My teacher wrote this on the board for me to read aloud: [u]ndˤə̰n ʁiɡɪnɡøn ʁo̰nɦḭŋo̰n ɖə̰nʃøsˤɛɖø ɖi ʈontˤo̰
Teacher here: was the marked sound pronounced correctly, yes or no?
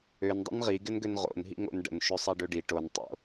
no